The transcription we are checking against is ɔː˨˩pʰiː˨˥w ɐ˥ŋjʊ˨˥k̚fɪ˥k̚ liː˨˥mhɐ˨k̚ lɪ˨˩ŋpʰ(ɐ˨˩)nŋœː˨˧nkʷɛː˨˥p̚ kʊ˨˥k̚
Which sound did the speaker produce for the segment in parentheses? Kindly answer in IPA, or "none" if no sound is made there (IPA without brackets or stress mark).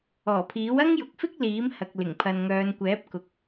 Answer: ɐ˨